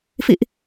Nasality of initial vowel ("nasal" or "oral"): oral